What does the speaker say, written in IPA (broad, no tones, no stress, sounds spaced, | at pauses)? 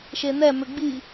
ʃ e n̪ ɛ m ʏ ɡ͡b i